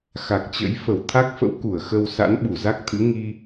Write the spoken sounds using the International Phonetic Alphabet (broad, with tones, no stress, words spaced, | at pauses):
xa˨˩k̚t͡ɕə̰˧˥j fə˧˩wt̪ʰa˦˥k̚fə̰˧˥w ku˧˩ə̯xə˧w sa̰˧˥nɓu˧˩za˦˥k̚ t̪ʰɨ̰˧˥ŋi˧